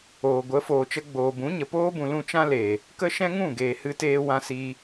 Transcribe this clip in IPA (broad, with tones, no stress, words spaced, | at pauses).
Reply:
oː˨ɡʷə˨˦ foː˨t͡ʃə˧ɡ͡boː˨ bũ˨˦ɲə˨poː˦ bũ˨ lũ˧t͡ʃã˦le˨ | kə˦ʃɛ̃˦ŋũ˦˨ ɡeː˨hɨ˧teː˧ wã˧si˧